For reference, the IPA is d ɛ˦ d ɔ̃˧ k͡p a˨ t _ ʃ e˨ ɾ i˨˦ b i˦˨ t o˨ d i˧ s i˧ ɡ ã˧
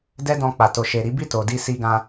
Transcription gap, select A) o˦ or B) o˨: B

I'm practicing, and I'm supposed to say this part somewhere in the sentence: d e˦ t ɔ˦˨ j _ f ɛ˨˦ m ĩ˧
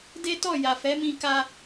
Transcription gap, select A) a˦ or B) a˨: B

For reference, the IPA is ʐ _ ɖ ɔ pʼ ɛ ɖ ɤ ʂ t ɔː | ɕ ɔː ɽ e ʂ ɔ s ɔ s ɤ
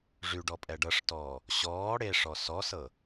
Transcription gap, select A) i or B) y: B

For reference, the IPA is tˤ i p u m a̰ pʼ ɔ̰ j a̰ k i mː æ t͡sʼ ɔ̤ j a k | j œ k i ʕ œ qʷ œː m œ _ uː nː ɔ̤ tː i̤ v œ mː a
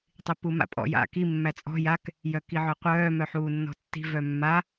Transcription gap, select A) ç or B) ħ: B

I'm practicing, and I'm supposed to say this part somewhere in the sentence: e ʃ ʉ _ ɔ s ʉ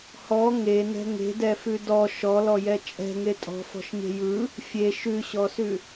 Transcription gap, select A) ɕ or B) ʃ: A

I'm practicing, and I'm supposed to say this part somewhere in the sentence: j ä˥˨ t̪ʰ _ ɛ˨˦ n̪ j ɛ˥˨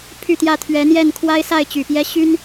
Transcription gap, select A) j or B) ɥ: B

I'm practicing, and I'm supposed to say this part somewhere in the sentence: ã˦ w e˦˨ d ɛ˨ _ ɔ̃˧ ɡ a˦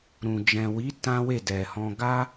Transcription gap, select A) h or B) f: A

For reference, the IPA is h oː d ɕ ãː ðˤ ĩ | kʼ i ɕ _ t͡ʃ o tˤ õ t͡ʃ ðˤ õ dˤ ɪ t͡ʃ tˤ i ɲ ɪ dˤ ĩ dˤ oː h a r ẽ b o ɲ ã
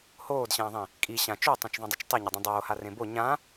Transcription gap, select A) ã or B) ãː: A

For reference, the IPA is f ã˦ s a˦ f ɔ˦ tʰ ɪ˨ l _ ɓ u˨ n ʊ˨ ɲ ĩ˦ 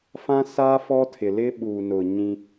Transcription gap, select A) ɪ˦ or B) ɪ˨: A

